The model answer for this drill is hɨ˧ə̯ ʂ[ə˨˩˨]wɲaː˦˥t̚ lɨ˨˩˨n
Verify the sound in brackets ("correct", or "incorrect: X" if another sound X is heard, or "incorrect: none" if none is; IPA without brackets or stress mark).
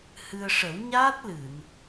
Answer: incorrect: ə˨˩˦